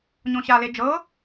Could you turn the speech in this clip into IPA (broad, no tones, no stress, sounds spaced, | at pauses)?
ɲ õ ɕ a l e d͡ʒ ɤ